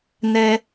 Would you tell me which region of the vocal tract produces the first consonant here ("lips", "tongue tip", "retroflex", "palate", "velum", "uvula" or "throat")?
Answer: tongue tip